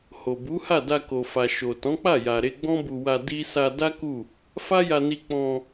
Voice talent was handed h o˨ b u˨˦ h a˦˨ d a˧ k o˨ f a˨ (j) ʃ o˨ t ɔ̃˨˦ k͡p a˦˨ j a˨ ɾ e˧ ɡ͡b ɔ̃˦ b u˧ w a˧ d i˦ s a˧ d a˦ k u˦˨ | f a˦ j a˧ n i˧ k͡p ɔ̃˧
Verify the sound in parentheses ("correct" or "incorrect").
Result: incorrect